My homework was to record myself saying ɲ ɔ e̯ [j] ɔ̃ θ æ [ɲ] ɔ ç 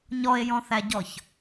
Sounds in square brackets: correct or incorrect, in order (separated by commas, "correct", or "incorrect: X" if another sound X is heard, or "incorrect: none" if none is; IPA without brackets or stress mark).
correct, incorrect: ɟ